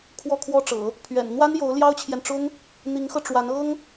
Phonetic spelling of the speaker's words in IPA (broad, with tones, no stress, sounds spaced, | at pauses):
kʰ w ɔ˥˩ kʰ w ɔ˥ ʈ͡ʂ ɤ̰˨˩˦ | pʰ ɥ ɛ̰˨˩ n n̪ w a˥ n j o˧˥ ʊ̯ l j ɑ˥ ʊ̯ t͡ɕʰ j ɛ˨ n ʈ͡ʂ ʊ˥ ŋ | n̪ i˧˥ ŋ x ɤ˧ ʈ͡ʂ w a˧˥ n ɤ˥ ŋ